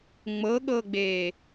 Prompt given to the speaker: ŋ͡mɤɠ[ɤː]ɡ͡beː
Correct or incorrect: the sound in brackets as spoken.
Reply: correct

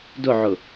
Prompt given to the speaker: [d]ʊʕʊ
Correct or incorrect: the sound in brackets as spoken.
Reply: correct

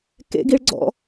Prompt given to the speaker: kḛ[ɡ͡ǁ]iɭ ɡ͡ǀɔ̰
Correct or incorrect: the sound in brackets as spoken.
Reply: incorrect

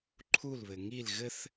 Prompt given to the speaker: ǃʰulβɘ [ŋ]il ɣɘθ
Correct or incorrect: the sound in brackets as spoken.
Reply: correct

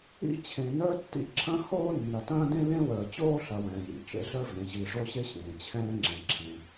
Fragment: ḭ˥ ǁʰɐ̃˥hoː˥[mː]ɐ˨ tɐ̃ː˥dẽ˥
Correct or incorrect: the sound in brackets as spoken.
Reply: incorrect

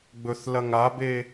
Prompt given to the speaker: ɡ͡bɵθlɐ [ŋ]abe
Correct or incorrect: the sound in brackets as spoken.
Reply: correct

